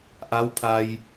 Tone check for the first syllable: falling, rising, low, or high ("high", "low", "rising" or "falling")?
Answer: rising